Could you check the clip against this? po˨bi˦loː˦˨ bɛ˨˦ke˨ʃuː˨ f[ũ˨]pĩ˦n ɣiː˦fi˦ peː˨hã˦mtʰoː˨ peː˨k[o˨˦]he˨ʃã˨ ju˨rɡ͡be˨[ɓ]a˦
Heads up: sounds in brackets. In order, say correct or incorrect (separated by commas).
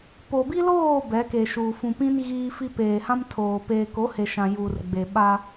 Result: correct, correct, correct